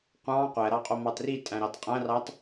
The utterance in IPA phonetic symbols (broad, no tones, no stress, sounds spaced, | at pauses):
qʷ ɑ̃ qʷ æ ɾ ɑ qʼ o m ɑ t r i tʼ æ̃ ɾ ɑ t qʼ æ̃ r ɑ t